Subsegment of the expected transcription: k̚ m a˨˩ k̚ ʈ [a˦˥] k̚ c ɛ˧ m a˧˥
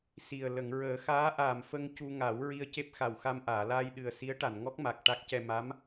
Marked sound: correct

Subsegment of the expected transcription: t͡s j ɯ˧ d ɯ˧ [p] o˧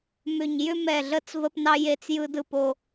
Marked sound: correct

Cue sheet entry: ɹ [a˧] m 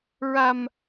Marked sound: correct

